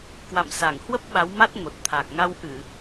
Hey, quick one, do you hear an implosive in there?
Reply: yes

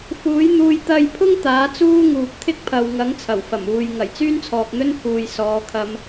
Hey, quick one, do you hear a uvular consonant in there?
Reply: no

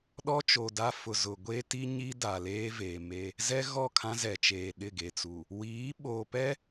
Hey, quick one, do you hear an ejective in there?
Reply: no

